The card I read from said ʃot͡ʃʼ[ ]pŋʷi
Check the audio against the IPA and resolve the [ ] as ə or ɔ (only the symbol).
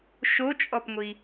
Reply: ɔ